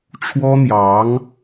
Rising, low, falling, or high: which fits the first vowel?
high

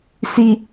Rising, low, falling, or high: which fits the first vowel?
low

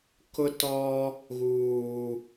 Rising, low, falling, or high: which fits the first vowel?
high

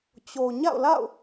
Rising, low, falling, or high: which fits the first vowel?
low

